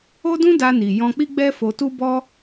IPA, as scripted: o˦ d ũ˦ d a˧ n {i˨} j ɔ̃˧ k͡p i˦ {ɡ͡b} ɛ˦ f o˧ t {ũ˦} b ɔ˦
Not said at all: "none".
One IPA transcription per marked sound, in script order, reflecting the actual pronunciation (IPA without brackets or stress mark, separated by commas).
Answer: i˨, ɡ͡b, u˦